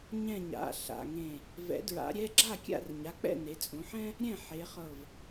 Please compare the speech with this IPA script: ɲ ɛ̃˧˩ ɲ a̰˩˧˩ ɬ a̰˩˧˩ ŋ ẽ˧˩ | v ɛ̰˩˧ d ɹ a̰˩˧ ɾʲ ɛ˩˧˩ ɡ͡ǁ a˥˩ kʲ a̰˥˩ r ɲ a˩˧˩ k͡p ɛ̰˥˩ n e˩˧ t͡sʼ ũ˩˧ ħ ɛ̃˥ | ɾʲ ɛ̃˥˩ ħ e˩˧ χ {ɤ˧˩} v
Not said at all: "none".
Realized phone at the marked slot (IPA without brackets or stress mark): ɤ˧˩